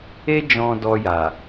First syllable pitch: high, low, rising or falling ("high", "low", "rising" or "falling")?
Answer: high